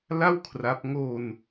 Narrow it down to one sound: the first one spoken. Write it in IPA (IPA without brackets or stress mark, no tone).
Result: l